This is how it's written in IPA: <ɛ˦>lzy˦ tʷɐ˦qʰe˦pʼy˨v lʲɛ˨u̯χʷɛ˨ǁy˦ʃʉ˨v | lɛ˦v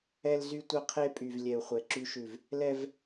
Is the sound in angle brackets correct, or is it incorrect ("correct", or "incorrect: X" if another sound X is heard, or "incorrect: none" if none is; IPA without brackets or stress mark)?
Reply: correct